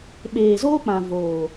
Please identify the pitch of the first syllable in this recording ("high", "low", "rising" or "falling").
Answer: low